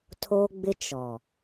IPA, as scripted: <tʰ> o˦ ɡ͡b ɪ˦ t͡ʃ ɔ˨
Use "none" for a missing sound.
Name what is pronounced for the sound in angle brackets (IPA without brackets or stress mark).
tʰ